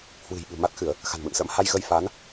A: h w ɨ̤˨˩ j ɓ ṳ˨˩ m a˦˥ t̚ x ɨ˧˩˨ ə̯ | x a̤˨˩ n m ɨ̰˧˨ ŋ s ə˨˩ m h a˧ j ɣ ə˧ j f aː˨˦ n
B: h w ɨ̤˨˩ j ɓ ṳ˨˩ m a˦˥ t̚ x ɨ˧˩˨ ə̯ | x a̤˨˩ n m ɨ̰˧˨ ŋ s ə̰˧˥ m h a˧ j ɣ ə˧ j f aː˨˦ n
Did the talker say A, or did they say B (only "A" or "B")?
B